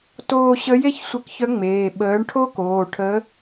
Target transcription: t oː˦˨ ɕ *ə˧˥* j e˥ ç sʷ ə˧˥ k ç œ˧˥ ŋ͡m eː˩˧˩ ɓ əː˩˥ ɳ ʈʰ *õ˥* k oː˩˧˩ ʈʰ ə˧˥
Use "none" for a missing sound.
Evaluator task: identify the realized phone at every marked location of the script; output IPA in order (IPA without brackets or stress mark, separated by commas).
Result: ə˧˥, o˥